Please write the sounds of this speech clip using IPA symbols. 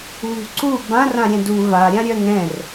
βṳǀu bãr ãɾʲɛ̃du va ɾʲãɾʲœŋɛ̃r

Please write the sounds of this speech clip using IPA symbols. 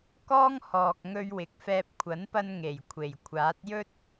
kɔː˥ŋhɔː˨k̚ ŋɵ˧ɥwɪ˨˥k̚fɛː˧p̚ kʷʰɐ˨˥npɐ˧n ŋe˨˩jkʷʰe˨˩j kʷʰaː˨˥t̚jɵ˥t̚

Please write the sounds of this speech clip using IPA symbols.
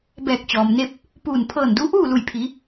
bɛː˧˩k̚t͡ɕɔː˩mne˥˨p̚ | puː˧˩n pʰɤː˧˩ndu˧˥ʔuː˥˨ lu˧˩j pʰi˩˧

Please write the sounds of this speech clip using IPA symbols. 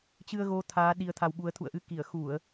t͡ɕɨ˧ə̯ɣo˨˦ t̪ʰaː˨˦ ɗi˧ə̯t̪ʰa˧wɓu˨˦ə̯ t̪ʰṵ˧˨ə̯ʔɨ˧ki˧˩ə̯ xu˧˩˨ə̯

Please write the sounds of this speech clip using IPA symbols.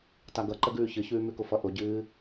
taɡʌǃəɡʉː çɨçʉːmʉkʊ fʌʔʊɟɨː

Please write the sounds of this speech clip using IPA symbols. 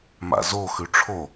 ma̰zo xʉʈ͡ʂʰo

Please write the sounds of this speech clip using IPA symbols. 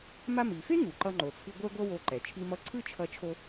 ma˧mi˩fe˥ ŋu˩ǃʌ˧ŋ͡ǃo˩t͡sʰɯ˧ ɡʷɛ˥ɡʷʌ˥wo˧ǃɛ˩ t͡ʃʰi˧mʌ˧ǀʰɯ˥t͡ʃʰʌ˧ t͡ʃʰo˧

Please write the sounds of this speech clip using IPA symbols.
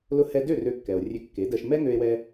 lʊ˧hɛ˧dø˥˩ rø˧kːɛ˩o̯ rʲø˧kːe˩˥dɜ˧ʃ mɛ˥ ŋø˧e̯wɛ˧

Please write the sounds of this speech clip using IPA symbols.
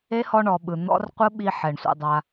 e˦ hɔ˧ɳɔ˨ ɓɯ˨ n̪ɔ̰˦r qʷɯ˦ɓi˧ ħɛ˨ɳsʷə̰˧dˤa˧

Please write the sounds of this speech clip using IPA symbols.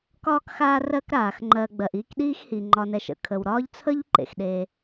kɒː˦kxaː˦ rɜ˦kɾaː˩x ŋ͡ǃɜ˨ ɡ͡bɜ˩ʔiː˦k ɗiː˥xhi˩ŋ͡ǃɒ˨nɛ˨ʃ ə̰˨kʰə˩wɾɒː˥ʎ t͡sʰə˥ʎ ǃḛ˩xɗeː˨

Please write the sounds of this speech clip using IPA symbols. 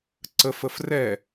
ǀəf əfrɛ

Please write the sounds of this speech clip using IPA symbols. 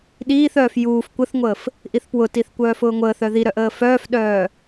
ɗiːθœːf juːf kʷəθŋʷəːf | ʔiθpwʊtiθ kʷœːfʊːŋʷəːθœ ðiɾœʔəː fœːfɗœː

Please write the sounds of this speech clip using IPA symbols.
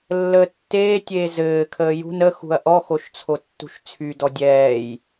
lːəːtːeːtʲeː zɘːkʰəː jṳn əxṳɐ̯ ʔɔxoʃ t͡sʰotːṳʃt͡sʰydɔ dʲɛːj

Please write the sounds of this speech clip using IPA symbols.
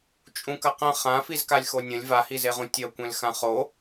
t͡ʃʼũkɐqɐ̃ χã fizkalʲxonʲɐ̃lʲ vahizeʁũ tʲɐ kʷẽlxãχo

